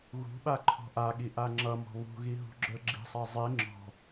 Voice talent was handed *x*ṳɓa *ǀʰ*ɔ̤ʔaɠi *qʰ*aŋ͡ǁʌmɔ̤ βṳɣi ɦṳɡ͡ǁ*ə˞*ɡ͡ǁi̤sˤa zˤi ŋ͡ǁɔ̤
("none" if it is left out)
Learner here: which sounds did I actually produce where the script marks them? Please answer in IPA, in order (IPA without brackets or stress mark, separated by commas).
ɣ, ǃʰ, ʔ, ə˞